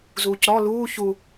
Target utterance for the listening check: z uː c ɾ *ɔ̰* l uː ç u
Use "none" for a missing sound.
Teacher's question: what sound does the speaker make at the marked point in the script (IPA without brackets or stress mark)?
ɔ